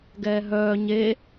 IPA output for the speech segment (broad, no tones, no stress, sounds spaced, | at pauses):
ɡ ɛː ɦ œː ɲ e